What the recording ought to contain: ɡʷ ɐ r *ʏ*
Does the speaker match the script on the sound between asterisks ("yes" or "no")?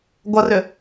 yes